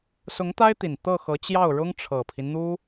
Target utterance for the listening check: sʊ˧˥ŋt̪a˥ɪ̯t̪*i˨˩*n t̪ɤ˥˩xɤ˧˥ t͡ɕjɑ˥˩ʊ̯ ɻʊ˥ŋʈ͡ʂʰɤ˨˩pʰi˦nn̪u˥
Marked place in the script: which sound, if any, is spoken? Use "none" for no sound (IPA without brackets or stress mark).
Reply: i˨˩